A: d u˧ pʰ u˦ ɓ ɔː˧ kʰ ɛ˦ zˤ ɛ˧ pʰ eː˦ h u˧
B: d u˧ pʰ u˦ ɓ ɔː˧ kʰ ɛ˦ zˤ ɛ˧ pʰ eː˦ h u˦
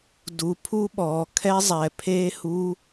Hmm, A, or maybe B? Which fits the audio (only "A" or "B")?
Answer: B